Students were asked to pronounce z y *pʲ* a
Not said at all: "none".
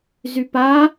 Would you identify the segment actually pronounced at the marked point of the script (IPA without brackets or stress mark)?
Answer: p